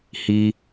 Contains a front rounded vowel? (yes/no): no